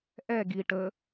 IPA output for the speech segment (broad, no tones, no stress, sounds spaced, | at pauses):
ʔ ɛ ɡ i ʈ ə